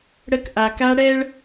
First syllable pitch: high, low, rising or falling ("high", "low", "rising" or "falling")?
high